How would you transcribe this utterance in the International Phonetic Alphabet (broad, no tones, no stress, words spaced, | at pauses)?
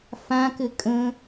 fã kɘkʼə̃